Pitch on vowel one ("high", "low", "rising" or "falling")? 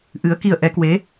rising